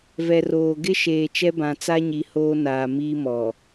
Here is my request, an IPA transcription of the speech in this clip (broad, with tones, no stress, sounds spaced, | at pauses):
v ɛ˨ r oː˨ ɡ ɪ˦ ʃ eː˨ t͡ʃ ɛ˦ b ã˨ t͡s a˦ ɲ i˨ h oː˦ n aː˨ m iː˦ m ɔ˨